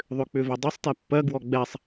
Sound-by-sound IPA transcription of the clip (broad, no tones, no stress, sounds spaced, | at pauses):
ðˤ ʏ k͡p ʏ v e dˤ e sˤ t ɛ pː ɜ ɡ w ɔ ɡ͡b ɛ sˤ